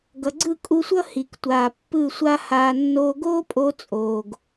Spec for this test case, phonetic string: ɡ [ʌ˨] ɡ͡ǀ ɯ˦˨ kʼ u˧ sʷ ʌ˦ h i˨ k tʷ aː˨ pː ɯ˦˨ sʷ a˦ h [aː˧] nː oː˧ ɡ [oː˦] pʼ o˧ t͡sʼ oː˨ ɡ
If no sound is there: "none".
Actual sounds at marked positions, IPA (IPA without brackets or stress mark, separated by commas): ʌ˨, aː˧, oː˦